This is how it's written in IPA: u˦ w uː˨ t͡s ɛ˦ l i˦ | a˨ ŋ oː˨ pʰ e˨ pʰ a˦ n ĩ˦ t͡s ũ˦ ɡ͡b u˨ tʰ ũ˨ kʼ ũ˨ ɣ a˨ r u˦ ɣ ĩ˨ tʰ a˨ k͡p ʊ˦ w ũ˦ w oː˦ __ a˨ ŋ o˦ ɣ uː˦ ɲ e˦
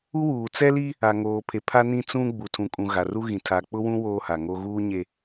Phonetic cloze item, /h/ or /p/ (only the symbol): h